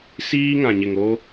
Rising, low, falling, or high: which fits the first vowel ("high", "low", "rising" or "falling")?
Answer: high